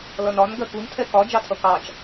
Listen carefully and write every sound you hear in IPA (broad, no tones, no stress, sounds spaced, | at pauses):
l ʌ n ɒ n ɡ ɜ k u n tʰ ɛ k ɒ d͡ʒ ɑ tʰ ʌ k ɑ t͡ʃ